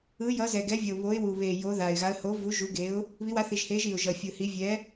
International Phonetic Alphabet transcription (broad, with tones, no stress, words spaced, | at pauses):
ɯ˨˥jʌ˨˥zɛ˨˩ ɡɛ˨˥vʲʌ˨˩ʊ̯βo˨˥ɪ̯ wu˨˩βe˨˩ jo˨˥ða˨˩ɪ̯ɣa˨˥ə̯ ho˨˥vu˨˥ ʒu˨˥ɡe˨˥ʊ̯ | βi˨˥wa˨˥θi˨˩ʒhe˨˥ʒ i˨˩ʊ̯ʒʌ˨˩ fʲɯ˨˩hi˨˥ vʲɛ˨˥